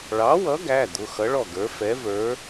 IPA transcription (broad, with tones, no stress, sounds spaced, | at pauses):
ɭ ɑ˨˥ w ʌ˨˥ ɡ æ˩˧˩ d̪ ʊ˩˧˩ x ʌ˨˥ ɭ ɔ˥˩ ɡ ə˞˨˥ f ɛ˨˥ v ə˞˨˥